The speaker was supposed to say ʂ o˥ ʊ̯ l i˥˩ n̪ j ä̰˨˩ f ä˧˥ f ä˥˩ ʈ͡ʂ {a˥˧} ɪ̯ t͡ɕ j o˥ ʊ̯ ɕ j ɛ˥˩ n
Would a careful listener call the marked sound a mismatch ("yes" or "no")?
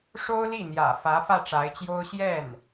yes